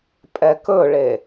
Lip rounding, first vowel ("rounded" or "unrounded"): unrounded